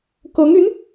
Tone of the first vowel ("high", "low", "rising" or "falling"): rising